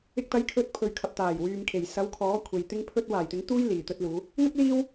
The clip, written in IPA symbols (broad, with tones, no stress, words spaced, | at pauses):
ɪ˧k̚t̪ɐ˨˥j kʰɵ˨˥t̚pʰɵ˨ɥkʰɐ˨p̚t̪aː˨˩j wyː˨mkʰe˨˩j sɐ˨˥wkʰɔː˨˥kʷʰe˨j t̪ɪ˥ŋpʰɵ˥t̚ waː˨˩jt̪ɪ˨˥ŋt̪uː˥j liː˨t̪ɵ˥t̚luː˨˥ | ŋɐ˥k̚ liː˥w